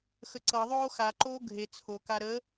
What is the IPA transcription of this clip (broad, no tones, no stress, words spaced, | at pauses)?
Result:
xəǀɤðˤoː xaǃoː ɡʱe t͡sʰoka ɾə